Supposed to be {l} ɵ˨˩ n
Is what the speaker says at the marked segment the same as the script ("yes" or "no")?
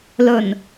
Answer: yes